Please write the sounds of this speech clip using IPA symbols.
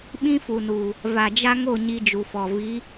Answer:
ɓ ĩ˦ f u˨ n uː˨ | v a˨ d͡ʒ a˦ ŋ o˦˨ ɲ i˦ d͡ʒ u˨ f ɔ˨ v i˨˦

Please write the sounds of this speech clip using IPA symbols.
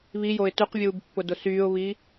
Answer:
β i j o ɪ̯ t ʉ q vʲ uː b pː ʊ d ʊ s yː ʊ̯ β iː

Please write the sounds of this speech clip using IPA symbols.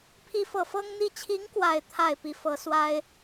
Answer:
pʰ i˥˧ f ɤ˥˩ f ɤ˥ ŋ n̪ i˥˩ t͡ɕʰ i˧˥ ŋ k w a˥˧ ɪ̯ t̪ʰ a˥˩ ɪ̯ p i˧˥ f ɤ˧˥ s w a˥ ɪ̯

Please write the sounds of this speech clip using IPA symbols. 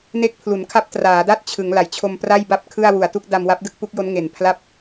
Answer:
n e˦˥ k̚ pʰ l u˩˦ n kʰ a˦˥ p̚ t r aː˩˦ d a˥˩ t̚ t͡ɕʰ ɯ˩˦ ŋ l a˩˦ j t͡ɕʰ o˧ m p r a˥˩ j b a˥˩ p̚ kʰ ɯ˥˩ a̯ w u˨˩ a̯ t u˥˩ k̚ d a˧ m w a˦˥ p̚ d ɯ˥˩ k̚ p u˦˥ k̚ j o˦˥ n ŋ e˨˩ n pʰ l a˥˩ p̚

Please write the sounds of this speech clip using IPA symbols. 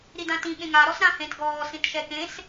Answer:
ɾ i d ã t ĩ ɠ ẽ ŋ a ɾ ɔ s ɾ ã h ẽ t ɡ ɔː s ĩ t ʃ ɛ k ẽ s

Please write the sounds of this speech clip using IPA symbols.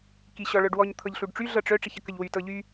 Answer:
k i ɕ ɔ ɭ œ ɖ w ɔ ɲ t̪ʰ ɤ ʎ ɬ u ɖ ʈ͡ʂ y ɮ ɤ ʈ͡ʂ œ ʈ͡ʂ i ç ə k ə ʎ w y t ɤ ʎ y

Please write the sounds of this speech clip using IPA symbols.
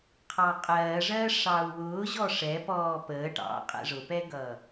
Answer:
qʰ ɑ qʼ ɜː ʐ ɜː ʂ ɑ u̯ w ʊː ʑ ɔ ʂ ɛ p ɔː p əː ʈ ɑ̰ qʼ ɛ̰ ʐ ʊ p ɛ ɡ ʌː

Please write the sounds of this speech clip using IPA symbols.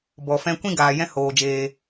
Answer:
b ɔ˨ f ɛ̃˧ kʷ ĩ˦ ɡ aː˨ j ɛ̃˦ h oː˨ d͡ʒ eː˧

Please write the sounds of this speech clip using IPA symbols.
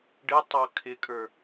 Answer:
ɖ ɪ tˤ ɑ kʰ ɪ kʼ ə˞

